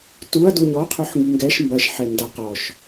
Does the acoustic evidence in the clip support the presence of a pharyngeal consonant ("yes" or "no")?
yes